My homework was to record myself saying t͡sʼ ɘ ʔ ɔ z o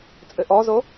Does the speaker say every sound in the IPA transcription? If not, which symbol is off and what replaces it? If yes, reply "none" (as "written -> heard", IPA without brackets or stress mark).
none